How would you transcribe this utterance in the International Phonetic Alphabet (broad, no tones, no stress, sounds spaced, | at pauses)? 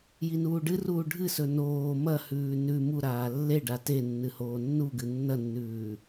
j i n uː ɖ ɨ r uː ɖʱ ɨ s ɵ n oː m ɐ h ʉː n ʉ m u ɾ aː lː e ɖ a t e nː ɨ h oː nː u ɡ ɨ nː ɐ nː ʉː